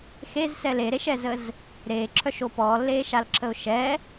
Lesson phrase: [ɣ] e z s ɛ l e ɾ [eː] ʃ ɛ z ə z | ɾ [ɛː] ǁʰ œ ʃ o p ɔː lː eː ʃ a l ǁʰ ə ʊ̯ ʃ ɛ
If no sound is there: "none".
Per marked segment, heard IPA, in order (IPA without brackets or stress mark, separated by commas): x, e, eː